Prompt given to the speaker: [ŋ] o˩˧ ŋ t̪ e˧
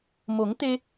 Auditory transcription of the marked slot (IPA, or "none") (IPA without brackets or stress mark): m